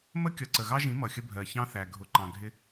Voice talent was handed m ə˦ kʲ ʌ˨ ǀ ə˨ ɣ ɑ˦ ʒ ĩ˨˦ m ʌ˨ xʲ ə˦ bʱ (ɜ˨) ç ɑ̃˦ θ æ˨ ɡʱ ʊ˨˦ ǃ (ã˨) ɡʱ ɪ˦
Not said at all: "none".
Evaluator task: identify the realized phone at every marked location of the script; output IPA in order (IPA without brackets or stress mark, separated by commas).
ɜ˨, ɑ̃˨